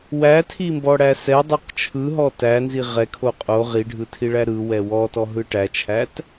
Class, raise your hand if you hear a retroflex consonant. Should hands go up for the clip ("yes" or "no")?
yes